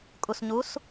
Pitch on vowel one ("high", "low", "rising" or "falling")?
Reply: low